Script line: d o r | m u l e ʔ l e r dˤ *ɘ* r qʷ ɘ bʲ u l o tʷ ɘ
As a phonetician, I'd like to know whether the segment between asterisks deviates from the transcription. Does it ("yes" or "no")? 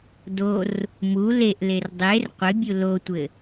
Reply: yes